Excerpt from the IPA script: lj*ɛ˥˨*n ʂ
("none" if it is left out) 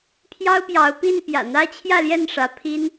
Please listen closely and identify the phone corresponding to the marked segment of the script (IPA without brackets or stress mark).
ɛ˥˨